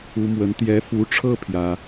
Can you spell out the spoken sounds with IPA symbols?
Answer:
u˧˥ m w ə˧˥ n t̪ j ɛ˧˥ f u˧˥ ʈ͡ʂʰ ɤ˥ pʰ j ä˥

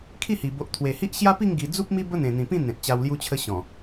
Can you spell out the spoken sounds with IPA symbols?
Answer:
kʰ i˥˧ h i˨˩ b o˨ ʔ t̪ʰ w e˨˩ h i˦ ʔ ɕ j a˦ p i˥˧ ŋ ɡ i˧ d͡z u˦ p̚ m i˦ b ə˦ n̪ ẽ˨˩ n̪ ĩ˨˩ p ĩ˥˧ n̪ ẽ˨ t̚ t͡ɕ a˧ w l j u˧ t͡ɕʰ ə˧ ɕ ɔ̃˨˩

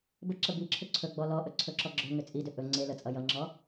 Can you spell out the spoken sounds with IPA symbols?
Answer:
b ə ǁ ə b i ǁʰ ʏ ǀʰ ɵ ɡ͡b ɔ l ɔ ʔ ɵ ǀʰ ɵ ǁ ɔ ɡ͡ǁ ɵ ŋ ʏ t͡sʼ i d ʏ ʔ ɵ ŋ͡ǀ e l ə t͡sʼ ʌ j ʌ ŋ͡ǁ ɔ

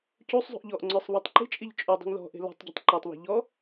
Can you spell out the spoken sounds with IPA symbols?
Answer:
c u sˤ zˤ ṳ ʔ ʎ ɔ ʔ ŋ͡ǀ ə˞ sˤ β ɔ tˤ ǃ i̤ t͡ʃʼ i ʎ t͡ʃʼ u dˤ ṳ ŋ ð ɔ̤ ʔ e̤ l ɔ̤ tˤ ɟ ɔ̤ tˤ ǃ ə˞ tˤ β e̤ ʎ ɔ

